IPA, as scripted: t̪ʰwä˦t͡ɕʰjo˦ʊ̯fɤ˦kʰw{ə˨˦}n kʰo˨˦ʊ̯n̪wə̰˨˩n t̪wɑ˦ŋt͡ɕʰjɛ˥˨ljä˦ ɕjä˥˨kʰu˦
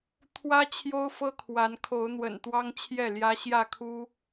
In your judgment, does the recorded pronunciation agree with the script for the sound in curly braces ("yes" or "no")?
no